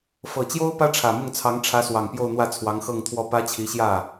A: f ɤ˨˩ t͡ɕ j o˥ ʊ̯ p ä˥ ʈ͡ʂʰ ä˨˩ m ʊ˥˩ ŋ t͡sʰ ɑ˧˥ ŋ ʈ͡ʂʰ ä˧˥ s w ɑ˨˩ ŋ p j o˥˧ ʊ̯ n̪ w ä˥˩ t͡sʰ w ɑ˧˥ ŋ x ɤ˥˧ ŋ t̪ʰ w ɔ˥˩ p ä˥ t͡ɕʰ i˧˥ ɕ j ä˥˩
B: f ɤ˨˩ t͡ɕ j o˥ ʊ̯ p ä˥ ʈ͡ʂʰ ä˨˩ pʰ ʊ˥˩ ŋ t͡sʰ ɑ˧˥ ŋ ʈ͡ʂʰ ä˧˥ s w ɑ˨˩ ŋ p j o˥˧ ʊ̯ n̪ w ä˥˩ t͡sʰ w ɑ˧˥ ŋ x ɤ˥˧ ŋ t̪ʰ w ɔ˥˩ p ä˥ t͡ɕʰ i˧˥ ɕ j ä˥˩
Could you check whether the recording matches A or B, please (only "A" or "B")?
A